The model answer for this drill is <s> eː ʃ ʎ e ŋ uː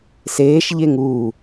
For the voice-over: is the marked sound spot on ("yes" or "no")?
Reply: yes